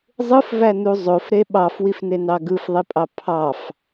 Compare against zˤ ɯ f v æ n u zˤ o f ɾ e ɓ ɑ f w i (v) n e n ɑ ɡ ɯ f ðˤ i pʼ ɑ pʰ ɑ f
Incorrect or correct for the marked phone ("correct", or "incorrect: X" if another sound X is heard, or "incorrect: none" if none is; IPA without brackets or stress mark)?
incorrect: f